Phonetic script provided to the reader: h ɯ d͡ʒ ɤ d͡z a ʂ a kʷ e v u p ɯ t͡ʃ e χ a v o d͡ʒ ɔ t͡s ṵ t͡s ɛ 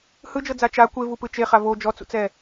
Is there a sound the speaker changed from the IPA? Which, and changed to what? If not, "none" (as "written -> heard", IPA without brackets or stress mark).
ʂ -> t͡ʃ